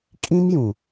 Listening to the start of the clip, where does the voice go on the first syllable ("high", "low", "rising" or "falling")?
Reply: high